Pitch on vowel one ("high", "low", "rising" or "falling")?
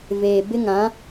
low